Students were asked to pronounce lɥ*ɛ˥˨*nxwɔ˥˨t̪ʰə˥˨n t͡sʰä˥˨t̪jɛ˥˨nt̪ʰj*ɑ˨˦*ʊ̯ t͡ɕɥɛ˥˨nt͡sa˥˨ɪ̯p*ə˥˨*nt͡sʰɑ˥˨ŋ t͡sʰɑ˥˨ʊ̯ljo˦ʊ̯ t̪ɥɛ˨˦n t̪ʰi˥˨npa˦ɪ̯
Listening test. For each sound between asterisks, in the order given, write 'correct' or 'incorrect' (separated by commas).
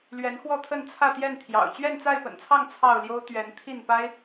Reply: incorrect, incorrect, incorrect